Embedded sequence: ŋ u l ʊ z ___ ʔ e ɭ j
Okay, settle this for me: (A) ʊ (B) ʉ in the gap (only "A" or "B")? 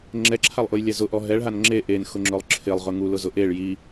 A